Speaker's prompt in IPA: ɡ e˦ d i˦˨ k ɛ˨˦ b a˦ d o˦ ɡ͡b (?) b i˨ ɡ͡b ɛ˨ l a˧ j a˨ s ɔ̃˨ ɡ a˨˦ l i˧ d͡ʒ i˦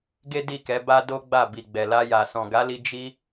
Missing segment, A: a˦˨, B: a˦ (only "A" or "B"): A